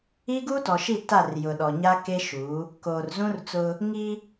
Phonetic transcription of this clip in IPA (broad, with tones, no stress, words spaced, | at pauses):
iː˦ɡuː˦tɔ˨ʃi˦˨ ta˦˨r jʊ˨ɗɔ˨ɲa˦ ke˦ ʃu˨˦ | koː˨r zũ˦rt͡sʊ˦ | ŋi˦